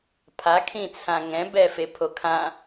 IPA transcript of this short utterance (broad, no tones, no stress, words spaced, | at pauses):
pʰakʰĩt͡sʰã ŋɛ̃bɛfepʰo kʰã